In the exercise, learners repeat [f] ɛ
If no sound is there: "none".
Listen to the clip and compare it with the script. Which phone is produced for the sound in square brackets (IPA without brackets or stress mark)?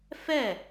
f